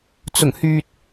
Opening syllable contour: low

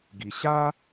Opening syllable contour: low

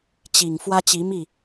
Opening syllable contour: low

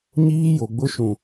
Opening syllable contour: high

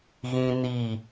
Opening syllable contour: high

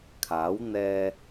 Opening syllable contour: rising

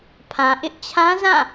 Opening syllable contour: low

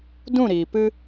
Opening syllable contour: falling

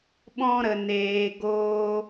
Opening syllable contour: high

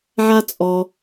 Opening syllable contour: high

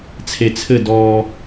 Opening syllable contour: low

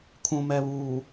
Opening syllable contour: low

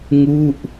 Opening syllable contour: falling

